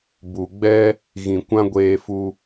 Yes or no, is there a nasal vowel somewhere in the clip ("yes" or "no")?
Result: yes